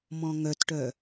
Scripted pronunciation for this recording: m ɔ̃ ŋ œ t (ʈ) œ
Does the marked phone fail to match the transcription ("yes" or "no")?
no